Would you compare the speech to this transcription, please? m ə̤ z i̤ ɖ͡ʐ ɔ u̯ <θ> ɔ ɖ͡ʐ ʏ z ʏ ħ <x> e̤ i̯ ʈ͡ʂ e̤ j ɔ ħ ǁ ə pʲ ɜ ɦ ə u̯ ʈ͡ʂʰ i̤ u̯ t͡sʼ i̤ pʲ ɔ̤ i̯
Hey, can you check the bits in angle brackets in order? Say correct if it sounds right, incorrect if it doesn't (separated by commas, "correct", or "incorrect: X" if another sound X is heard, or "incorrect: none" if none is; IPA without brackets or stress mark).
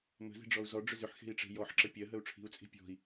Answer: incorrect: z, correct